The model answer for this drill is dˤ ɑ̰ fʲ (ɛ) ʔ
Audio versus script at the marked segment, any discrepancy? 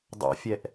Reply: no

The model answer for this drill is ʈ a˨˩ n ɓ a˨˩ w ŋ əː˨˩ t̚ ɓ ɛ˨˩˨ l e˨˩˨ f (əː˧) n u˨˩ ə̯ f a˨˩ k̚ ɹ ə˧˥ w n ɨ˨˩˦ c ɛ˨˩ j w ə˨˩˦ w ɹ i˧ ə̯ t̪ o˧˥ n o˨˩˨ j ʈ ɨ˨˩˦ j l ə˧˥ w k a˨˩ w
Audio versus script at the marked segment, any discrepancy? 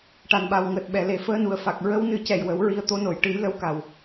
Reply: no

